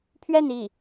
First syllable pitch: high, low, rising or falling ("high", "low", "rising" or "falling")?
falling